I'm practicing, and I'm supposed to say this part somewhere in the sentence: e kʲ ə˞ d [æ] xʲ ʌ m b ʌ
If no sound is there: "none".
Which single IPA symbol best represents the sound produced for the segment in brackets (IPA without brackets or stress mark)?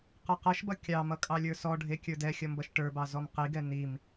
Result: ɛ